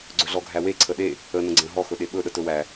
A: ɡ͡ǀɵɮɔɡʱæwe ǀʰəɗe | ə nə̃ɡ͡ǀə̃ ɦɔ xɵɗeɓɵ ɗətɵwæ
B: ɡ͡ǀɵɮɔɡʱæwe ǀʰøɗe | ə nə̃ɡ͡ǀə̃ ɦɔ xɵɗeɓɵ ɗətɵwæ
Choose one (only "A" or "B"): A